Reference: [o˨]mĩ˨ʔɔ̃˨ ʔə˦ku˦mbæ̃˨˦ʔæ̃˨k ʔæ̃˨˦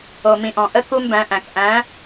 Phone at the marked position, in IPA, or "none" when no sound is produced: o˨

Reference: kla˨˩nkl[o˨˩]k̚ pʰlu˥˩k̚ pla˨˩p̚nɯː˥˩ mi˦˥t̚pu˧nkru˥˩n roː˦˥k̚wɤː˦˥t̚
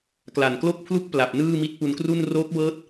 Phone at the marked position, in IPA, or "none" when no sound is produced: o˥˩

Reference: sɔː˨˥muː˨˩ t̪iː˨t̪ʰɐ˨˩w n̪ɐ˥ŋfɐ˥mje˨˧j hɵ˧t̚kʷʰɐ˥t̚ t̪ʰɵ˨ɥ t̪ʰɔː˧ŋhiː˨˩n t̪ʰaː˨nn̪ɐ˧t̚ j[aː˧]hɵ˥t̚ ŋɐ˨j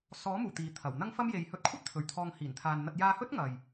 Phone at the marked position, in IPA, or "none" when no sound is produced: aː˧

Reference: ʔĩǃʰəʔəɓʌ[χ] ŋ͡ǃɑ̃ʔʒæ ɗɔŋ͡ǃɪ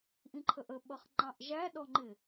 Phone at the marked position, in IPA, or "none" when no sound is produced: χ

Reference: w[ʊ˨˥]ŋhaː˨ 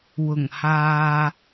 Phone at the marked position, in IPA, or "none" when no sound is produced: ʊ˨˩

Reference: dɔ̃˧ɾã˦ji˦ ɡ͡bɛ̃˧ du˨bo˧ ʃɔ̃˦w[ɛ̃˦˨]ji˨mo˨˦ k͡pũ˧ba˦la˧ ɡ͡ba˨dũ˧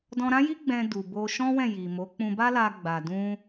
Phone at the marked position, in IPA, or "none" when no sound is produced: ɛ̃˦˨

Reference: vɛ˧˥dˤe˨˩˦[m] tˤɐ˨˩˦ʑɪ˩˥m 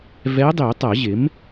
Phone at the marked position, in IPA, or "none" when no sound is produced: none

